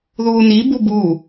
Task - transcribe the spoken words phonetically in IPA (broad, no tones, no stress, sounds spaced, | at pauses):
ð uː n i b u b uː